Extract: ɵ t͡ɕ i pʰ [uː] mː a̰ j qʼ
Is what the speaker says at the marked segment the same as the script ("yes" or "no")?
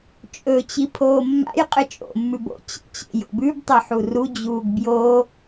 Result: no